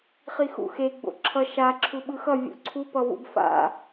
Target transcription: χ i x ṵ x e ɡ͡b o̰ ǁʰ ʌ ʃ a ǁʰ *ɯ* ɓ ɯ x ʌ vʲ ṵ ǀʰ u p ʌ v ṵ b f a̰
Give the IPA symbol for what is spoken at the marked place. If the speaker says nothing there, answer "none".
u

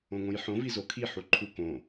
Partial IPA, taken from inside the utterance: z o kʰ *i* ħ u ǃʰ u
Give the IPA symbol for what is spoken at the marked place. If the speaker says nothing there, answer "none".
i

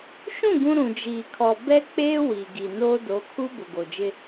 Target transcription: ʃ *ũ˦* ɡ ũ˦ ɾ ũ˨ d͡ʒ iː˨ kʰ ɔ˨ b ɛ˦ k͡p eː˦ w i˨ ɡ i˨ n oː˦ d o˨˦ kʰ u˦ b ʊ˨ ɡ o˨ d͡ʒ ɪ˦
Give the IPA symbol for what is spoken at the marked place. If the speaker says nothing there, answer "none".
ũ˦˨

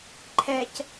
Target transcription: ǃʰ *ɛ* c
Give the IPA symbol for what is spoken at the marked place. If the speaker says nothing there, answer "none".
ɛ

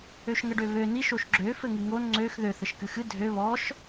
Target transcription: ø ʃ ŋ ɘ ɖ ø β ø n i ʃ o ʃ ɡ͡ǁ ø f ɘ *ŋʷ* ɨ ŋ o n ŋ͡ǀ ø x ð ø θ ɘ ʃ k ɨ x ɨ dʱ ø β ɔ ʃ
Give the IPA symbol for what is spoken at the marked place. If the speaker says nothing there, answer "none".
ŋ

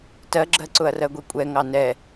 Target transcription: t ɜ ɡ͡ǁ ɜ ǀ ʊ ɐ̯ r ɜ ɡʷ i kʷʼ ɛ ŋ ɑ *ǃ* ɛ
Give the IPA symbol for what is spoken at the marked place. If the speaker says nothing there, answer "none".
n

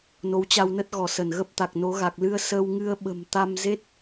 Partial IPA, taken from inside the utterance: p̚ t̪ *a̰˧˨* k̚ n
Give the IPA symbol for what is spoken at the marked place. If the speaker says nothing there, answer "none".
a˨˩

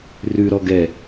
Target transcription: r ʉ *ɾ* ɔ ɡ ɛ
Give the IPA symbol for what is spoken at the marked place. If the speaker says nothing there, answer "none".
ɾ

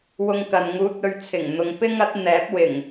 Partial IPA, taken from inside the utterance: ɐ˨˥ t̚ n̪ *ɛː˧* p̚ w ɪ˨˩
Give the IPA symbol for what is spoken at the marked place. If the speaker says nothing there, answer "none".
ɛː˨˥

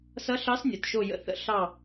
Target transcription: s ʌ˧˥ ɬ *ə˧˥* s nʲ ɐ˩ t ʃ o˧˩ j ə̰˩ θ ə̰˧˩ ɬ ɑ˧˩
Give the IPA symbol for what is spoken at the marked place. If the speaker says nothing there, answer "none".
ɑ˧˥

